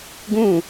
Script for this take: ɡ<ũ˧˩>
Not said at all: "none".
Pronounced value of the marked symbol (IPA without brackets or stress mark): ũ˧˩